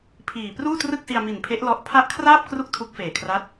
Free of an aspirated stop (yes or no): no